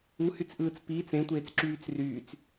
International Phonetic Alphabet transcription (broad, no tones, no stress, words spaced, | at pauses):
uhyt͡sʔɯːt͡s piːt͡s ẽtʷeːt͡sǁyːt͡s ryːt͡s